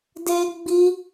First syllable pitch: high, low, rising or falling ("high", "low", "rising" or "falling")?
high